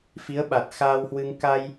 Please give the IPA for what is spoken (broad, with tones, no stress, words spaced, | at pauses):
fi˨˦ə̯ɓa˨˩t̚xaː˧whwɨ˧ŋ ka˧j